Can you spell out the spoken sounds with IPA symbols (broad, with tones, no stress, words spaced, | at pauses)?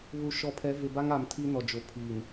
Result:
βu˨ ʃɔ˨pʰɛ˨˦ vɪ˨ba˦ŋa˨m tʰi˦nɔ˨d͡ʒo˨ pʰiː˨n